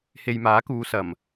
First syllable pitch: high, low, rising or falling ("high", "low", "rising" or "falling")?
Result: low